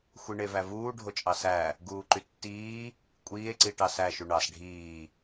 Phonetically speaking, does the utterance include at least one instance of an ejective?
yes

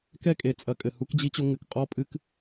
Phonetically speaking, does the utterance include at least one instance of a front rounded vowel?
no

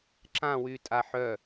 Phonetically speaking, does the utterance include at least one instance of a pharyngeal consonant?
yes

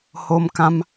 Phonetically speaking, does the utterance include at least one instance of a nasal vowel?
yes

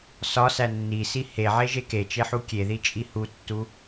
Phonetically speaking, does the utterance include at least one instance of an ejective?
yes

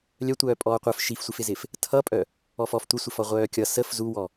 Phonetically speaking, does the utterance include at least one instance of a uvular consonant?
yes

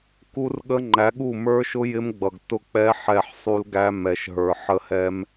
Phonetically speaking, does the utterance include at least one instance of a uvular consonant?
no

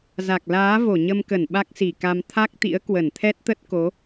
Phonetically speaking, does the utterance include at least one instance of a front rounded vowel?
no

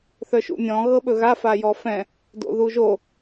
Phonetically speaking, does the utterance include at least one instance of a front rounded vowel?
yes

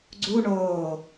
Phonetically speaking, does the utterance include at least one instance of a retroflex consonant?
yes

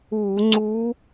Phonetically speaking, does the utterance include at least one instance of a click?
yes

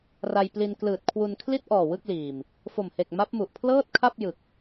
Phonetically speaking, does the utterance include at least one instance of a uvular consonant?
no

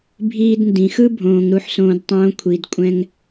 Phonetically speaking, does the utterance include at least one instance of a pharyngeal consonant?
yes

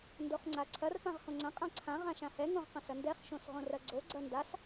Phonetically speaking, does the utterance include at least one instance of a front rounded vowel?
no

